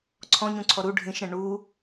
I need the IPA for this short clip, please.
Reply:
ǀʰ ɔ̃ ɲ ũ ǀʰ ɔ ɾ u ɖʱ ĩ ʃ ɾ ɛ̃ ɳ u

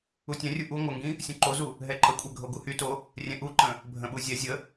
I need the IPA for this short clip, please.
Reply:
u tʲ ɛ̃ rʲ u ʔ u ŋʷ ə ŋ ɡ ĩ | sʲ ũ ǃ o z u | ɦ ɛ ǃ ə kʷʼ ɛ ɡʱ o ɡ u h y t o | rʲ ɛ̃ ʔ u ǃ ə̃ | bʱ ə̃ ɓ u zʲ ɛ zʲ ə

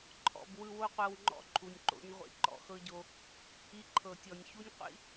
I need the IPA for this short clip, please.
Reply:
ǃʰ ɔ̰˨ b w ɯ˧ w o˦ qʷ ɤ˧ w ŋ͡ǃ ɔ̰˦ ǃʰ u˨ nʲ ǃ o̰˦ ɲ ʁʷ ḭ˧ ǃ ɔ̰˧ x ɤ˦ ɟ o˧ | i˧ ǃʰ ɤ˨ tʲ ɔ˨ nʲ ç u˦ nʲ qʷ ḭ˦

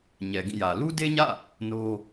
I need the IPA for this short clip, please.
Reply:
ɲ ɛ˨ ɡ ĩ˦˨ j ä˨ l u˦ d e˦ ɲ ä̰˦˨ | n o˦

